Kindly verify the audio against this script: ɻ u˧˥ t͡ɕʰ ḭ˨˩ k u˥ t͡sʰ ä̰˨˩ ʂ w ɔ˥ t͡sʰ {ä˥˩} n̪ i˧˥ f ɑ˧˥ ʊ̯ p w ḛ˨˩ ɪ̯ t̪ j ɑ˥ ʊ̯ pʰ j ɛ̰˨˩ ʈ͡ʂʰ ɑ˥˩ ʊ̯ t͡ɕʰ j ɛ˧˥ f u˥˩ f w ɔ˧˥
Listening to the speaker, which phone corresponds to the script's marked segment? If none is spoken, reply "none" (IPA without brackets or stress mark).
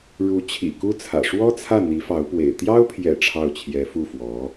ä˥˩